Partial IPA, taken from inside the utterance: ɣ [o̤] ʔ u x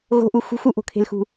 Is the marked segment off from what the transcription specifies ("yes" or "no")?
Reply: no